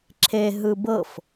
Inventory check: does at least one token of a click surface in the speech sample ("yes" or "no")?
yes